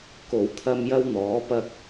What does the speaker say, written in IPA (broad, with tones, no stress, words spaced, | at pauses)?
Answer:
ko˨˩wt̪ʰɐ˧m jɐ˥wn̪ɔː˨˥pɐ˥k̚